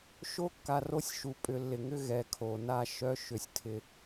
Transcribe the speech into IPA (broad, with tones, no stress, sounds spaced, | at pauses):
ʃ o˦ kː a˨ r o˦ sʲ ʃ u˨ pʼ ʏ˨ lː ɪ˨ ŋ ʏ˦ ɣ ɛ˨ kʰ o˨ n a˦ ʃ œ˦ ʃ ʏ˨ sʲ tʰ ɪ˦